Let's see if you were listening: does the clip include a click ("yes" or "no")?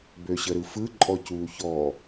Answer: yes